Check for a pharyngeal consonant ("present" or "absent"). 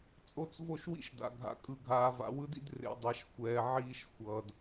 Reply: present